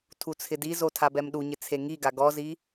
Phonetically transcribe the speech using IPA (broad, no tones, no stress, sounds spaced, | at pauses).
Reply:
tʰ u t͡sʰ ɪ d i z o tʰ a b ɛ m ɗ u ɲ ɪ t͡sʰ e ŋ i ɡ a ɡ ɔ z i